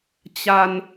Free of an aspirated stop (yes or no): yes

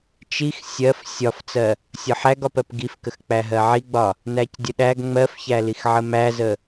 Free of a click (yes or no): yes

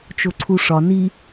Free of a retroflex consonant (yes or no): no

